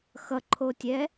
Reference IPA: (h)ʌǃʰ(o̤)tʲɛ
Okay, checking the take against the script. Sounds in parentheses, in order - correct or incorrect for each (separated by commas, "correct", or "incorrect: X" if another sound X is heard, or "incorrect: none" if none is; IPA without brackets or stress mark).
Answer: incorrect: x, incorrect: o